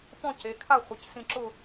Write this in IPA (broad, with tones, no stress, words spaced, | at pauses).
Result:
pɔ̃˥˧ ce˩˧kʰa˥˧ χʷɪ˩˧csĩ˧ ǁʊ˥˧